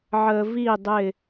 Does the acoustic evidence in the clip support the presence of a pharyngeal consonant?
yes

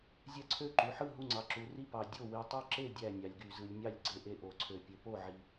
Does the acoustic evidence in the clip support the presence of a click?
yes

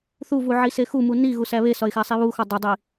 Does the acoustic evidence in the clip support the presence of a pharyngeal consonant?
yes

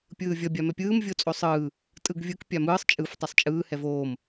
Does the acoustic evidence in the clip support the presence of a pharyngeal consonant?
no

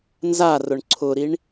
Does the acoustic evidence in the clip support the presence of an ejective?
no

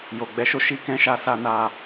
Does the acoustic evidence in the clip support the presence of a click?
no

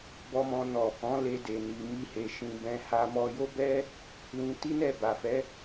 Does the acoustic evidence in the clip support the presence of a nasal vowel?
yes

